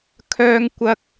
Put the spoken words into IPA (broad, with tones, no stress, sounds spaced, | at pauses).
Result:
kʰ œː˥ ŋ kʷ ɐ˥ k̚